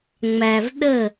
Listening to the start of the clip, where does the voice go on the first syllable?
low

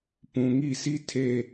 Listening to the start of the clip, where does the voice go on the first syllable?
low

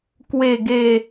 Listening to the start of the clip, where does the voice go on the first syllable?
falling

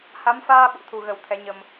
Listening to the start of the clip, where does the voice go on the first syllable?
rising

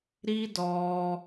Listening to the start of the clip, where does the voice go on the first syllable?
high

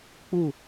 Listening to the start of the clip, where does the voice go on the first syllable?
falling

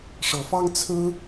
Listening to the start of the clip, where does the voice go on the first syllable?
rising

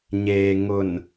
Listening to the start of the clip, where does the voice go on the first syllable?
low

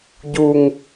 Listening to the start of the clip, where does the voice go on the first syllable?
low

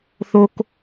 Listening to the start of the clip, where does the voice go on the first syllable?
high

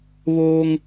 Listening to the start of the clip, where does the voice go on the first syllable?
high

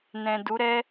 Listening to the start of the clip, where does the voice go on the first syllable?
low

